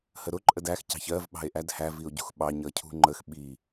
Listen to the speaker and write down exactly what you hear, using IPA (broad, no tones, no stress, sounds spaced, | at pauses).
h ə ɾ ʊ ǃʼ ə d æ x c ɑ̤ ç ɜ v ɓ ɑ̤ e̯ ʔ æ d h æ v i o̯ ɟ ṳ x ɓ ɑ ɲ ʌ cʰ ṳ ŋ͡ǃ ə x ɓ i